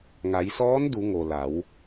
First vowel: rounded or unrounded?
unrounded